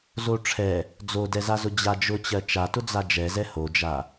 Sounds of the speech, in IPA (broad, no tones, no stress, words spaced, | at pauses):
zoʈ͡ʂʰɛ | d͡zodɛzazʊ d͡ʑad͡ʒʊt͡ɕɜ t͡ʃa tʊd͡zad͡ʒɛzɛ hod͡ʒa